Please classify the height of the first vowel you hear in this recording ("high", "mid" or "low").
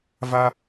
low